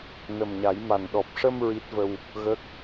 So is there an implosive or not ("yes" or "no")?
yes